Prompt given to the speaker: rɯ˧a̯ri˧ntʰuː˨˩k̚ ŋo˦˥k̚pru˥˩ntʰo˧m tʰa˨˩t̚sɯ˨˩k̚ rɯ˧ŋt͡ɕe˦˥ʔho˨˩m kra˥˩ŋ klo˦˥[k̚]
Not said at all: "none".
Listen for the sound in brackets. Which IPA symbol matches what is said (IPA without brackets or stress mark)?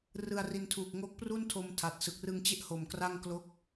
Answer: k̚